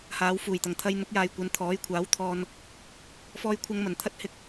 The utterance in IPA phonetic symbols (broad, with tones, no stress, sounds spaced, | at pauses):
h aː˨˧ w f uː˨˩ j t̪ ɐ˨˩ ŋ t̪ʰ ɐ˧ j n̪ ʊ˨˥ k̚ j aː˨ j kʷ ɐ˨˧ n t̪ʰ ɔː˨˥ j kʷʰ aː˨˥ w t̪ʰ ɔː˧ n | f ɔː˧ j kʷʰ ɐ˧ ŋ m ɐ˨˩ n t̪ʰ ɐ˧ t̚ h ɪ˧ k̚